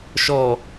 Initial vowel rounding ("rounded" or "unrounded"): rounded